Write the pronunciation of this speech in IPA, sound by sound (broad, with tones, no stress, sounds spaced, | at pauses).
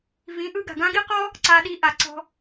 v ĩ˨˦ ʔ ɯ˧ ɡ a̤˨ ɡ ã˦ ɡ i˦ q ɔ˦ | ǀ a˧ ɗ i˧ ʔ a˨ ǀ ɔ̤˧